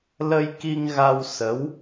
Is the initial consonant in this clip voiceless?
no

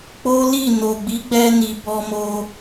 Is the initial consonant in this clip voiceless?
yes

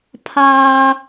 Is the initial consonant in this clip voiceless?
yes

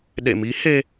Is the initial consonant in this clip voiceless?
no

